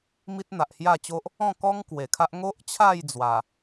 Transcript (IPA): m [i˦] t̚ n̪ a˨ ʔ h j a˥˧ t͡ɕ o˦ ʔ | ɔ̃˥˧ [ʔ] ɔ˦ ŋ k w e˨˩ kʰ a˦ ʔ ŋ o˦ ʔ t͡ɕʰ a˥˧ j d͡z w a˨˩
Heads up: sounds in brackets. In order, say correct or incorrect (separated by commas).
correct, incorrect